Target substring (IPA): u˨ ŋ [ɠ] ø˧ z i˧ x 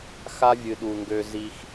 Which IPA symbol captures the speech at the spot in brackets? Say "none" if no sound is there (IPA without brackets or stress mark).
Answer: ɡ